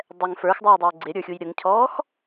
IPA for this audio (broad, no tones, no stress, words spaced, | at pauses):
dˤɛŋ fə˞xdˤuːdˤəː ɡ͡ǀɪɾʲə˞xʲuj ɾʲəŋcʰɔːx